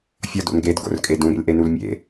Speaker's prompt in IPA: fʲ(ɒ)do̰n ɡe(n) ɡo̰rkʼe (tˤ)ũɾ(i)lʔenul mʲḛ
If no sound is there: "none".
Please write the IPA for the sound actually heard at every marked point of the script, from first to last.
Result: ɒ, d, d, ḭ

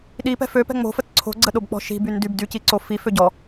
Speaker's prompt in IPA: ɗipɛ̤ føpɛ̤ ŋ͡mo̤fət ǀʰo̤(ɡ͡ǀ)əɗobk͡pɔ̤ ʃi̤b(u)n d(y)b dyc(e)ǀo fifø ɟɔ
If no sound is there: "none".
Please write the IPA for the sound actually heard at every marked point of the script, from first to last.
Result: ɡ͡ǀ, y, y, i

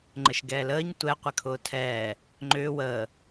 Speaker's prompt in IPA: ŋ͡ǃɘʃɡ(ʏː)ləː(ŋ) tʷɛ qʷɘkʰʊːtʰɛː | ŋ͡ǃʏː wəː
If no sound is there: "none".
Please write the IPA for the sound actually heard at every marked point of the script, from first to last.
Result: ɛː, ɲ

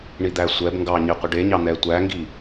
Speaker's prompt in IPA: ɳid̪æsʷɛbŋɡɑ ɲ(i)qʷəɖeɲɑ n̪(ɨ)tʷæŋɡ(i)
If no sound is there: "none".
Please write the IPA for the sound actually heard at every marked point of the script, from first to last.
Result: i, ɛ, i

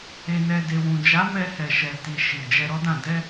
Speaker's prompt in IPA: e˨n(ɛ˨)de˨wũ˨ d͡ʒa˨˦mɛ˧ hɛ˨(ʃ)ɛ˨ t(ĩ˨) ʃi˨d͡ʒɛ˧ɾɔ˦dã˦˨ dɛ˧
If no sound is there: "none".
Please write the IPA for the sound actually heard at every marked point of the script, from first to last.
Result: ɛ˨, ʃ, i˨

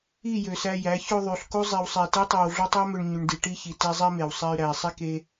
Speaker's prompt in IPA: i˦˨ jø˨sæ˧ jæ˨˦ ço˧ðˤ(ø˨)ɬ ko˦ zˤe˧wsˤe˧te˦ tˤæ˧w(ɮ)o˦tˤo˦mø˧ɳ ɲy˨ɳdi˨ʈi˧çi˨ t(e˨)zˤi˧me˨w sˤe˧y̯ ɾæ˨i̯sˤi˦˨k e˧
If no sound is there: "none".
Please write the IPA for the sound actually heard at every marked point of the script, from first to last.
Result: y˨, ɮ, e˧

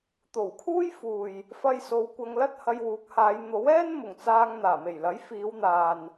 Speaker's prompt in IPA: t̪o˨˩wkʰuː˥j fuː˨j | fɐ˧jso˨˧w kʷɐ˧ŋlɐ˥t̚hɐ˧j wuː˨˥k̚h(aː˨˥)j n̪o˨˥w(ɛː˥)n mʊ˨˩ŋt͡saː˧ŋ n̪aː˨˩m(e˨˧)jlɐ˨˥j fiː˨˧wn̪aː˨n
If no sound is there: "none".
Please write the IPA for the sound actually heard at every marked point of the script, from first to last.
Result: aː˨˧, ɛː˥, e˨˩

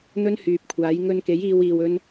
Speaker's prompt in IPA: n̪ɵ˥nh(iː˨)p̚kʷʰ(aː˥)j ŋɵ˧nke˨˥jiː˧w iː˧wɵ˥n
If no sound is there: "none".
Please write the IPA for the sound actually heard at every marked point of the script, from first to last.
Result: yː˨, aː˨˥

